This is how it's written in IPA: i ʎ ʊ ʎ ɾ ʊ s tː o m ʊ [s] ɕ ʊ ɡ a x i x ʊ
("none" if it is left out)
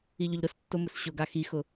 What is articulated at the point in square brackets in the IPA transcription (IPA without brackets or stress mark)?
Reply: s